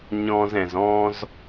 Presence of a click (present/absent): absent